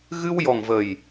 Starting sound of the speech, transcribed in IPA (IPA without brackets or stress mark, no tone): ɣ